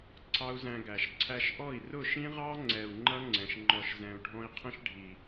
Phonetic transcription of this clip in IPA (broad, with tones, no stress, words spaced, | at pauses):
ǀʰɑ˦u̯zæ̃˧ɡæ˨ʃ ǀʰæ˧ʃʔɔ˦˨i̯ rʊ˦˨ʃĩ˦ʁɑ˦ ŋ͡ǀɛ˨u̯ ŋ͡ǃʌ˦ŋ͡ǀɛ̃˨ʃ ŋ͡ǃɔ˨ʃzɛ̃˨u̯ɖʱɔ̃˧i̯ qʰə̃˦ʃɖʱi˨